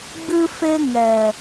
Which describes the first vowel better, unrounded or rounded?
unrounded